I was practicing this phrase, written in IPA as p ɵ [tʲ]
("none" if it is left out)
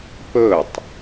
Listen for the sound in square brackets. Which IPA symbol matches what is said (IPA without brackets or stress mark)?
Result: tˤ